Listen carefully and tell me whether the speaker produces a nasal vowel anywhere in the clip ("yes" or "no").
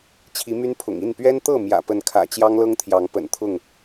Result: no